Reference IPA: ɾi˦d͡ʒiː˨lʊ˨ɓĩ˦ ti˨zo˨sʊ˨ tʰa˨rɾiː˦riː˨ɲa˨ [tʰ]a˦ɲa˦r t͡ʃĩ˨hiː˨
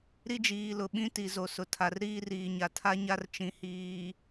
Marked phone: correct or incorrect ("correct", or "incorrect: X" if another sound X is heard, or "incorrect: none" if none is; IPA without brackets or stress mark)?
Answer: correct